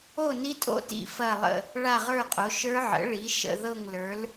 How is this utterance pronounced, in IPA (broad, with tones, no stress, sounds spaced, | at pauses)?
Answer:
o˥˧ n i˦˥ tʼ o̰˥˧ t ḭ˥˧ f ɐ˥˧ lˠ ə̰˥˧ | ɭ a˥˧ ʁ ə˞˥˧ qʼ o˨˥ ʃ ə˞˦˥ ʕ ə̰˨˥ ɭ i˨˥ ʃ ə̰˥˧ ð ɤ˥˧ ŋ l ə˞˨˥ l